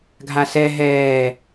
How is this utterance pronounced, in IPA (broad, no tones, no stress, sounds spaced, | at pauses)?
ɡʱ a s ɛ ɦ ɛː